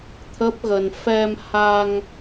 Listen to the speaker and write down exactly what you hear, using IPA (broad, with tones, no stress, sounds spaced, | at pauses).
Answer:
t̪ʰ ə˦˥ p̚ ɣ ə˧ n f ɛ˧ m h a˧ ŋ